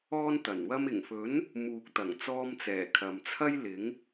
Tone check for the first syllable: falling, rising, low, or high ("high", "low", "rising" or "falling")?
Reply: high